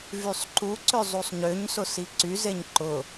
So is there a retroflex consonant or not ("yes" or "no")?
no